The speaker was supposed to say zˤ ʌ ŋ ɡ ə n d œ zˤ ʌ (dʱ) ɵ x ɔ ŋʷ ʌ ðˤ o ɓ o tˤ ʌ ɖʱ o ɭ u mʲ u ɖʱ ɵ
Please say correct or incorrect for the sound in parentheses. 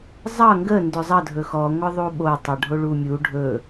correct